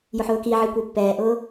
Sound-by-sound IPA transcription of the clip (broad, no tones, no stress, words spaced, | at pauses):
jʊħʊːkiʕi kʷipːɛːʔʊː